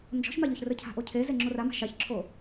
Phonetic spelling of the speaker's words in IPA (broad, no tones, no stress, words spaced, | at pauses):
nd͡ʒɔ̤ʃmaʎoçrɘ cʰa̤ʔocʰeze ŋ͡ǁorama̤ ʃaçǁʰo